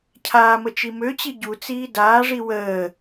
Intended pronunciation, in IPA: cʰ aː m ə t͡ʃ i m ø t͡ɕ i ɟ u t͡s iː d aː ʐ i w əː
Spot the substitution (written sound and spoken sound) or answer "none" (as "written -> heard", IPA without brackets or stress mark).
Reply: none